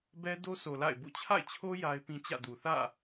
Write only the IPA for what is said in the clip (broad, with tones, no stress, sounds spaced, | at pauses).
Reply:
b ɛ˦ d o˦ sʰ o˨ l a̰˦˨ ɪ̯ b ṵ˦˨ t͡ɕʰ a̰˦˨ ɪ̯ t͡ɕʰ o˦ j a˦ ɪ̯ p ĩ˦ t͡ɕ ä̰˦˨ d u˨ θ ä̰˦˨